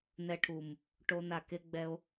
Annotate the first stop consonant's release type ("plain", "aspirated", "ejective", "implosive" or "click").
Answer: aspirated